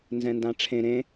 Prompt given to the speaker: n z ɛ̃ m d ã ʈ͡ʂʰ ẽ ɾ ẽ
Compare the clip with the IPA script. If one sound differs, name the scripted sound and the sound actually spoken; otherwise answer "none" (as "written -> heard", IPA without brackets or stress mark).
m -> n